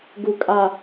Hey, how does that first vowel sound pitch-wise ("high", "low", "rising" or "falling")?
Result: low